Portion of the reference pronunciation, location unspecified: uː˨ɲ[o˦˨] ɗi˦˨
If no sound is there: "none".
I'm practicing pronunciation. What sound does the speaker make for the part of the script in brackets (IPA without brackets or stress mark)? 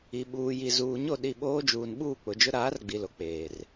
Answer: o˦˨